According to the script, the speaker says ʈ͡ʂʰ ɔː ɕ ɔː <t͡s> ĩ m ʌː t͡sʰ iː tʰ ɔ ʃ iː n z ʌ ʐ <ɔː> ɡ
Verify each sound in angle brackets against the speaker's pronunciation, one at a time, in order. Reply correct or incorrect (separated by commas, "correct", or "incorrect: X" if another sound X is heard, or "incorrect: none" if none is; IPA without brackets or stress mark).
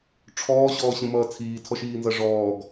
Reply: incorrect: ɕ, correct